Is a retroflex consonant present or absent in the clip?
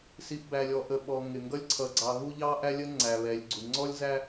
absent